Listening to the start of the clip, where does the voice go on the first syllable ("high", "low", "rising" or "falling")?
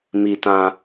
low